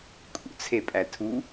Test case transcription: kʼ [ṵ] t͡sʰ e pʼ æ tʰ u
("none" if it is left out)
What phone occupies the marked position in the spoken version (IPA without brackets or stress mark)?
ṵ